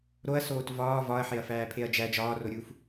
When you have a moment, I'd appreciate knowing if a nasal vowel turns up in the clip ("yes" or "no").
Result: no